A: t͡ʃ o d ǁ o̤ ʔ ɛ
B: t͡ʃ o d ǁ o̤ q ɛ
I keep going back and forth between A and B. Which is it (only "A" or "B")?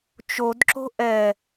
A